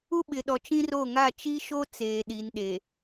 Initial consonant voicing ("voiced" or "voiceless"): voiced